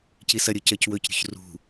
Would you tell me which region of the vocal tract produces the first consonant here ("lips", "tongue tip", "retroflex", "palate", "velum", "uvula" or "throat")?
palate